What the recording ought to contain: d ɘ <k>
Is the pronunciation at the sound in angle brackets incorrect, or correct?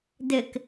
correct